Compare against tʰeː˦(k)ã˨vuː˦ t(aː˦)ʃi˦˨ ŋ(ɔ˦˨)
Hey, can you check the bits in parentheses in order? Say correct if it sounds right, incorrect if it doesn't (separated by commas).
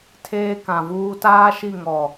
correct, correct, incorrect